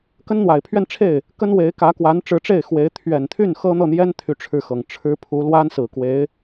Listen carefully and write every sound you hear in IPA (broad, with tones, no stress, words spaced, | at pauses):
kə˥nn̪wa˨˩ɪ̯pʰɥɛ˥˧nʈ͡ʂʰe˥˩ɪ̯ | kə˥nwe˧˥ɪ̯kä˧˥kwa˧˥n ʈ͡ʂɻ̩˧˥ʈ͡ʂe˥˩ɪ̯ xwe˧˥ɪ̯ t̪ʰɥɛ˨˩nt̪ʰy˥˩n xɤ˥n̪ɤ˥˩n̪jɛ˥n t̪ʰy˥˧ʈ͡ʂʰɻ̩˥˩xɤ˨˩ŋ ʈ͡ʂʰɻ̩˥pʰu˧˥ lwa˥nsɹ̩˨˩ kwe˧˥ɪ̯